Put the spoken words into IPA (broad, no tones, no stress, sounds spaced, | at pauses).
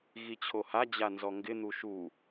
ɣ i t͡ɕʰ o h a d͡ʑ a n z ɔ ŋ ɡ ɪ n̪ u ʃ u